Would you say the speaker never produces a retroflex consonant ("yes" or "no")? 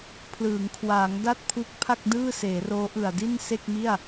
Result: yes